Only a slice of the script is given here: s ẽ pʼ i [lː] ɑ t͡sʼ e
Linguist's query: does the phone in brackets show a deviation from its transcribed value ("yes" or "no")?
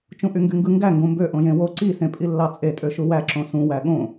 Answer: no